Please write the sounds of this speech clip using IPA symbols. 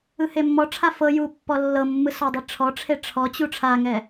ɯ h e mː ɔ ʈ͡ʂʰ a f ɤ j u pː ɔ lː ɤ mː ɯ s ɔ dˤ i ʈ͡ʂʰ ɔ ʈ͡ʂʰ e ʈ͡ʂʰ ɔ t͡ɕ u ʈ͡ʂʰ a ŋ ɛ

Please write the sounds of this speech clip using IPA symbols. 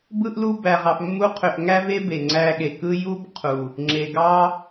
b ɯ˦ ʔ l u˦ b æ˧ ʁ ɑ˧ f mː u˦ qʰ ø˧ ʔ ŋ æ˦ v e˦ b e˨ ŋ͡ǀ æ˧ ɠ e˨ k ɯ˦ j u˦ b qʰ u˨ | ŋ͡ǁ e˨ ɡ ɑ˦

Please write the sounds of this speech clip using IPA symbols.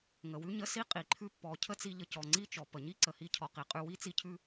ŋ ə˩ w ʉ˦ ɲ ə˦ s i˥ qʼ i˩ ǃʰ ʉ˦ pː ɔ˨ cʰ ə˥ t͡s i˦ ʎ ə˦ c ɔ˩ ŋ͡ǀ i˥ t͡ʃ ɔ˩ p ə˩ ɲ i˥ ǀ ə˨ h i˦ cʰ ɔ˨ q i˩ qʼ ʉ˥ w i˥ t͡s i˦ cʰ ʉ˥

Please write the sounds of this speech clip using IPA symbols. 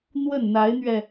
n̪ w ə˥˩ n n̪ a˧˥ ɪ̯ n̪ ɥ ɛ˧

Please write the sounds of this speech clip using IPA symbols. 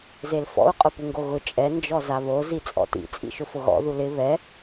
z e l f ɔ̰ u̯ qʼ ʊ p u ŋ ɡ o ɣ ʊ t͡ʃʼ ɛ n d͡ʒ ɔ z a β o z i t͡sʼ ɔ̰ t ḭ t͡sʼ ḭ ʃ ʊ f ʊ ɣ ɔ̰ ð u l ɪ β ɛ

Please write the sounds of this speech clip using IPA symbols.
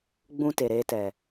ɡ͡b ũ˧ t e˨ ɾ eː˧ t ɛ˨

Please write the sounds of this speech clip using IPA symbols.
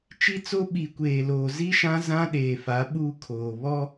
t͡ʃ i˦ t͡s o˦ ɓ i˨ kʷ eː˨ l oː˨ z i˦ ʃ ã˦ z ã˦ ɗ eː˨ f a˨˦ ɓ uː˦ kʰ oː˨ β ɔ˦

